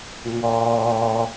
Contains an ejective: no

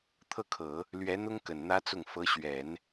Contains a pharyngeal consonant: no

